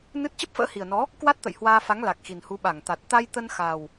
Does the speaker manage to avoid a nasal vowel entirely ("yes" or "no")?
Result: yes